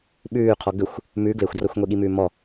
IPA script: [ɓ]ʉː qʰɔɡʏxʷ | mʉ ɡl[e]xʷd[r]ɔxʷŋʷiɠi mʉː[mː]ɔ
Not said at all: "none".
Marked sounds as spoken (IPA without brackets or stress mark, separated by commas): ɓ, e, r, m